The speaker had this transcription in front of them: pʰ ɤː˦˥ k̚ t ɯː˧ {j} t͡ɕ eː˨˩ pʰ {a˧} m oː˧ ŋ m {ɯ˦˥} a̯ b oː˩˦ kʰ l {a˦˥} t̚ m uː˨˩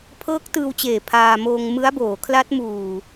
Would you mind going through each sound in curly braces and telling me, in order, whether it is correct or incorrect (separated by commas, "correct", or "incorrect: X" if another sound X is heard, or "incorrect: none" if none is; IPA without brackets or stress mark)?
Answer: incorrect: w, incorrect: aː˧, correct, correct